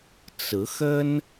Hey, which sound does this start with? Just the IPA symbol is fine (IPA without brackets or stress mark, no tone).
t͡s